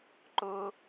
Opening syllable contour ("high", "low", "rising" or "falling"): high